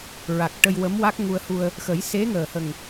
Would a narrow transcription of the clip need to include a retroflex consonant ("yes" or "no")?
yes